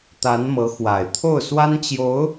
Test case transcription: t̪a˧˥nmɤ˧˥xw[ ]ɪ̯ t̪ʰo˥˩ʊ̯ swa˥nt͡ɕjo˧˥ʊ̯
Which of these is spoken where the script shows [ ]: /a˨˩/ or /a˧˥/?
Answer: a˨˩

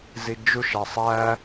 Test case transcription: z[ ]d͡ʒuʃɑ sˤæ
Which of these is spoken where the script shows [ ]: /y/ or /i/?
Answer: i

